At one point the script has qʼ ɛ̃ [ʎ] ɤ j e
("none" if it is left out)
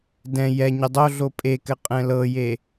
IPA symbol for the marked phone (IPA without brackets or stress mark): l